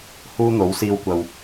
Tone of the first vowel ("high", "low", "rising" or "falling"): high